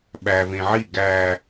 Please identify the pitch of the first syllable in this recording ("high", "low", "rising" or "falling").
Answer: low